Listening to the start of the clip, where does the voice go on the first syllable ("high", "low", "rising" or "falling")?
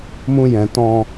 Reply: high